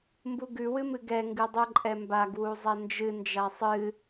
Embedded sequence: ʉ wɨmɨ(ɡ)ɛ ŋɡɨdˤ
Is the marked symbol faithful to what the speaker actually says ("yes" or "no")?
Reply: yes